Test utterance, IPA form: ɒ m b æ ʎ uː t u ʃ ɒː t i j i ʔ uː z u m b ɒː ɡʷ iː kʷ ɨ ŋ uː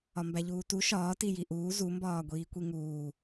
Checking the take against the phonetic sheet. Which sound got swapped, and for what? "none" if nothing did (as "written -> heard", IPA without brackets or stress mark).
ɨ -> i